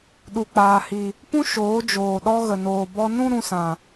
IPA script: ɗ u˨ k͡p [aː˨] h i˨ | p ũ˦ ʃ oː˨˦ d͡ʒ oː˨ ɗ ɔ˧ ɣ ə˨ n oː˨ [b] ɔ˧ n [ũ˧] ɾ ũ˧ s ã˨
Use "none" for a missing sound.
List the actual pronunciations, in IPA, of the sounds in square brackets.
aː˨, b, ũ˦

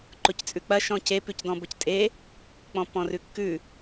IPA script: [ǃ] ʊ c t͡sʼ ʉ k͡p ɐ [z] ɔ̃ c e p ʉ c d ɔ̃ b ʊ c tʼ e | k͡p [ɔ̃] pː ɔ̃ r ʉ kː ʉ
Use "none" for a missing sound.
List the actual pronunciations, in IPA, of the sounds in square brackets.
ǃ, ʃ, ɔ̃

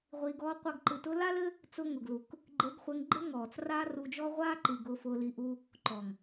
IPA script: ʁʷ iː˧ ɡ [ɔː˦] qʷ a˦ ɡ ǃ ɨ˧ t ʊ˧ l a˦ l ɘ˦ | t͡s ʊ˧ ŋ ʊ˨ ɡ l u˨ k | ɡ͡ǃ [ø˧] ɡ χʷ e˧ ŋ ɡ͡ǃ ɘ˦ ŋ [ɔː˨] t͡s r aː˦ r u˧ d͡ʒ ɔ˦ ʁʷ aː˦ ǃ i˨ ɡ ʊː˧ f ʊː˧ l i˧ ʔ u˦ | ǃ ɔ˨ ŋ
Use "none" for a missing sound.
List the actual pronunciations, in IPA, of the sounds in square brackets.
ɔː˦, e˧, ɔː˨

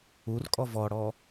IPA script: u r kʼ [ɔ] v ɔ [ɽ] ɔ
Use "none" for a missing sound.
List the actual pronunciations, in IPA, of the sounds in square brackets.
ɔ, ɽ

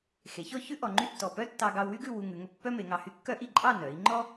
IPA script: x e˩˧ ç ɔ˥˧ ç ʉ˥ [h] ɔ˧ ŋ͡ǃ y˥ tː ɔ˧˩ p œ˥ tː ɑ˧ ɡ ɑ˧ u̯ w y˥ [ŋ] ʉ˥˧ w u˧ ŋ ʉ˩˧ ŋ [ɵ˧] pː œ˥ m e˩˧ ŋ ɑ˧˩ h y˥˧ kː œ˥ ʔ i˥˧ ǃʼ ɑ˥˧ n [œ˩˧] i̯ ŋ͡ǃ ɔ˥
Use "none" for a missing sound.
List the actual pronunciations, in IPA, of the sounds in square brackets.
ʔ, ɡ, ɵ˧, œ˩˧

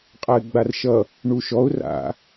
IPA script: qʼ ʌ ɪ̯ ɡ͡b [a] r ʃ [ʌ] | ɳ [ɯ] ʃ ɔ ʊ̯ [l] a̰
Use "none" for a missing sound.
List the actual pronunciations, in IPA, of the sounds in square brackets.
a, ʌ, u, r

